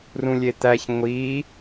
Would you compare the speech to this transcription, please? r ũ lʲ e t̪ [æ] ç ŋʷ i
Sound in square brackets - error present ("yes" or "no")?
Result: no